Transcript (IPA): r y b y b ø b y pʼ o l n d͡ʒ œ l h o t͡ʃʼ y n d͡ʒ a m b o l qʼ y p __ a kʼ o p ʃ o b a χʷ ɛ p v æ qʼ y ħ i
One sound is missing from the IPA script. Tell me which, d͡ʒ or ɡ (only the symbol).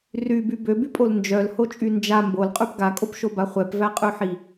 ɡ